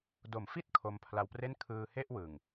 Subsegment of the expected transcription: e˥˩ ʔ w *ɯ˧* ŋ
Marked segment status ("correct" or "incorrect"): incorrect